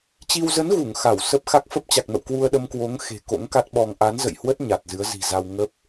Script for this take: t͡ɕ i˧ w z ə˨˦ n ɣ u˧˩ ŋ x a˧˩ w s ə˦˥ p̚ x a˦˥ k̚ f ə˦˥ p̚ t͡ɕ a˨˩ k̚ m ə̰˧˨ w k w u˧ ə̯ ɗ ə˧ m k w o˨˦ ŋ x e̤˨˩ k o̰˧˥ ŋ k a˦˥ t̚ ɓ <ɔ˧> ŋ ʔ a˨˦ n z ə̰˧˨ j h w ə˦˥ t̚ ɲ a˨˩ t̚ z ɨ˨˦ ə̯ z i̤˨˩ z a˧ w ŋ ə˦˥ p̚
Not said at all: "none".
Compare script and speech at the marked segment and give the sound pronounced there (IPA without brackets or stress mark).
ɔ˧